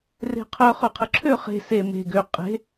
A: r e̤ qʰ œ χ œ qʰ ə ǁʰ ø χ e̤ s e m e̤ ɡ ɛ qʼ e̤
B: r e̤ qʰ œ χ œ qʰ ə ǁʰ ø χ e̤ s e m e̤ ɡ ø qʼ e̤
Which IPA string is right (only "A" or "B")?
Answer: B